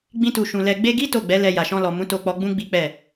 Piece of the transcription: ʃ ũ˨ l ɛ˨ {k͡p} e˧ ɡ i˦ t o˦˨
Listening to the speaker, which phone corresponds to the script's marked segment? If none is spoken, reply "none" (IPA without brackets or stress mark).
ɡ͡b